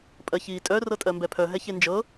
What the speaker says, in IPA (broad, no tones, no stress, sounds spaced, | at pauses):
pʼ ɜ ç iː tʼ œ r ɤ tʼ ɜ m b ɛ pʰ œ ɦ ɛ ç e n d͡ʒ ɤ